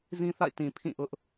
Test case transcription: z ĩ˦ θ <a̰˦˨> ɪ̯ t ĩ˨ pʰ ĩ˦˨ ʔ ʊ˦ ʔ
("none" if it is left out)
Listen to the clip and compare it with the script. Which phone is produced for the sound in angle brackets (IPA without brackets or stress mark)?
a̰˦˨